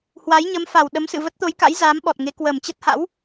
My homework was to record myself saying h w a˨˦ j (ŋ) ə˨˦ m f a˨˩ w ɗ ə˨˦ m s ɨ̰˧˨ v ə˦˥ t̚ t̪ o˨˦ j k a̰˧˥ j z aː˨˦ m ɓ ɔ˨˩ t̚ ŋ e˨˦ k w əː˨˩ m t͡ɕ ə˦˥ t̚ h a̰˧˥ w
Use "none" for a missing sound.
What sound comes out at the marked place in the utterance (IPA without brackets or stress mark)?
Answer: ɲ